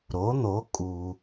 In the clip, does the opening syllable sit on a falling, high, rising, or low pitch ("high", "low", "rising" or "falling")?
rising